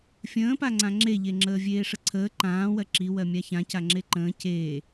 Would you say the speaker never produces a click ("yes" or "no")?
no